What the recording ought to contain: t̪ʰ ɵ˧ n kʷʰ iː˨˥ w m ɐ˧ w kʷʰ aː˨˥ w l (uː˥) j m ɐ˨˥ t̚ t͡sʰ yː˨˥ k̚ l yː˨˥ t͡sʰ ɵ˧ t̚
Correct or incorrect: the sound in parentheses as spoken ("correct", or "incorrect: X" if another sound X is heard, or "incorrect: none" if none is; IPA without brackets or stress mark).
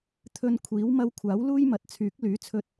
correct